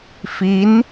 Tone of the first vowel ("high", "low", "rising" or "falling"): rising